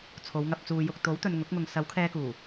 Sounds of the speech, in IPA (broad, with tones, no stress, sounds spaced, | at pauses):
t͡sʰ o˨˧ w ŋ ɐ˨ p̚ t͡s uː˨ j ʊ˨ k̚ t̪ o˨˥ w t̪ ɵ˨ n ŋ ʊ˨˥ k̚ ŋ ʊ˨ ŋ s ɐ˨˥ w kʰ ɛː˧ k uː˨˩